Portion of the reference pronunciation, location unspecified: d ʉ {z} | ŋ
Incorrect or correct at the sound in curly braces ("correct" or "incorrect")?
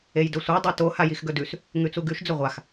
incorrect